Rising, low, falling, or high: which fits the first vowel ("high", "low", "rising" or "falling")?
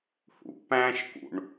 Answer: low